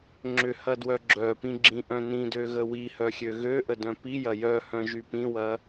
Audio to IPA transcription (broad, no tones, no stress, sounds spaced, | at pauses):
ŋ͡ǁ ʏ h ɐ d w œ ɡ͡ǁ œ p ĩ ɡ͡ǁ ĩ ʔ œ̃ n ĩ d ø ɣ ə w i h œ xʲ ø ɣ ø ʔ ə d œ̃ p i j ɐ j œ h œ̃ ʒ y p ĩ w ɐ